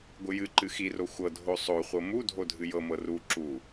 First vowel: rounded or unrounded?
unrounded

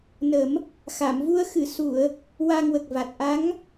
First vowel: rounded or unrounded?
unrounded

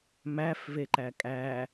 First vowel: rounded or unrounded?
unrounded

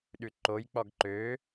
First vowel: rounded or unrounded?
rounded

